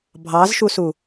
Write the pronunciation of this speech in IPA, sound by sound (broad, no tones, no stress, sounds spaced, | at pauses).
bʱ ɑ z ʃ u s u